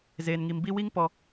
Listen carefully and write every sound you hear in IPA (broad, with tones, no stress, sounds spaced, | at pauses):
z eː˨ n ŋ i˨ m b i˦ w i˦ ŋ p ɔ˨